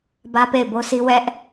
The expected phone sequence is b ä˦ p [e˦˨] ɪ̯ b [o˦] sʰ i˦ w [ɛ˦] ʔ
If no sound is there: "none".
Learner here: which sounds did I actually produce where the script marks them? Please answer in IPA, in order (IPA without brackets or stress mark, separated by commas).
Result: e˦˨, o˦, ɛ˦